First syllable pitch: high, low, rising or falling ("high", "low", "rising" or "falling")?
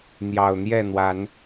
low